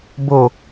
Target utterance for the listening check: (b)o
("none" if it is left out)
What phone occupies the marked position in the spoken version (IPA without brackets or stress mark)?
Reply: b